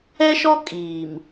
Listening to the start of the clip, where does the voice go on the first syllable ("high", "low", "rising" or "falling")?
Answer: high